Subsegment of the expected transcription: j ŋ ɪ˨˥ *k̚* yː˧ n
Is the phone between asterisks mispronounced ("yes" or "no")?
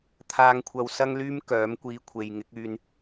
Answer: no